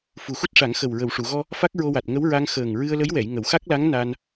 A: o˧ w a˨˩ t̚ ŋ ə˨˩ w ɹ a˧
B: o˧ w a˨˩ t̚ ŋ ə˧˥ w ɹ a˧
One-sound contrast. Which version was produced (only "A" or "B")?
B